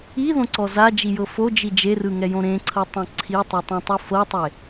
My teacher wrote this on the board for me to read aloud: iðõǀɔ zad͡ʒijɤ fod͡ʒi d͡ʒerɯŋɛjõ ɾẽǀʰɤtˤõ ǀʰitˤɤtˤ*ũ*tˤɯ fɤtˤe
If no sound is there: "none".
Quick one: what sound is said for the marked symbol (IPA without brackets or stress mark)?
õ